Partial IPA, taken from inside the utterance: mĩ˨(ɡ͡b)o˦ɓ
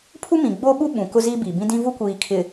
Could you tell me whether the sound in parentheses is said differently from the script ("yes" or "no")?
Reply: no